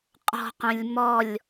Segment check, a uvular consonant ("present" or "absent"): present